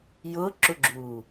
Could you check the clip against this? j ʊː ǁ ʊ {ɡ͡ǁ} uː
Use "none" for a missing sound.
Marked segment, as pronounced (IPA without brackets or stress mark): ɡ͡ǁ